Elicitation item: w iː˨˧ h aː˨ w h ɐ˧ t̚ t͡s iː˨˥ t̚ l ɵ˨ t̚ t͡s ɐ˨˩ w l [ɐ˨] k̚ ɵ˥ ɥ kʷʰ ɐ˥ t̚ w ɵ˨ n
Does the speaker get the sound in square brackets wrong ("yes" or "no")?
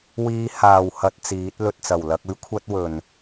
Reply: yes